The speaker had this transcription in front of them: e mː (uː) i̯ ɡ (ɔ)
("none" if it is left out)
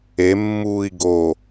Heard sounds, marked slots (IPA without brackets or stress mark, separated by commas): uː, o